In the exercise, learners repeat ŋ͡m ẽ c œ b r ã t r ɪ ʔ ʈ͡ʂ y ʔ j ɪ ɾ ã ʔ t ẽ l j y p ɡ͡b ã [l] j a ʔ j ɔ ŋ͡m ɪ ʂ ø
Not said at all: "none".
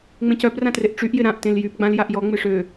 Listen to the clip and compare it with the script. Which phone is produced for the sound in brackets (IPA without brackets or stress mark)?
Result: l